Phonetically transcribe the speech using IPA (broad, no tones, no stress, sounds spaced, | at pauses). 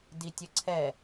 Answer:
d i tʲ ɘ ǀʰ ɛ